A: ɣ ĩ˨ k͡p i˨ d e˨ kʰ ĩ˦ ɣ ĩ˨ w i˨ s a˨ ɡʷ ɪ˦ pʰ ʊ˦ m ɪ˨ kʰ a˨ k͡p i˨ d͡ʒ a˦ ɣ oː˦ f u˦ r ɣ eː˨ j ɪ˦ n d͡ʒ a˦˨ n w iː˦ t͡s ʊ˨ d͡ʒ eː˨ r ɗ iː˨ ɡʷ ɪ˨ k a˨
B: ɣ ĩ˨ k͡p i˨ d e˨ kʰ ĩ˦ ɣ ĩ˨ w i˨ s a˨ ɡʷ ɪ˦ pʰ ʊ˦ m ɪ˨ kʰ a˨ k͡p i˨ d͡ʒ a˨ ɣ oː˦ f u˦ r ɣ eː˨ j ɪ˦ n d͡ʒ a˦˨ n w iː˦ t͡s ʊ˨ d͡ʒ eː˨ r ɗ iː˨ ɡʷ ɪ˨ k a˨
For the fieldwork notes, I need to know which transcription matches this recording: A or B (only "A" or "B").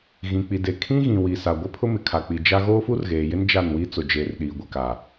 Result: A